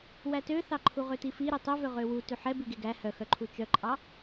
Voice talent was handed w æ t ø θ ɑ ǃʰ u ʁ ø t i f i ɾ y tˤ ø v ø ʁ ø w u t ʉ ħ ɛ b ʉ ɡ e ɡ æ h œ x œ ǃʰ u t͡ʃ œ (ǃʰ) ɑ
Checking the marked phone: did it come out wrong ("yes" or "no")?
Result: yes